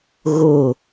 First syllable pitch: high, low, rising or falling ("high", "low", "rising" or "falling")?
falling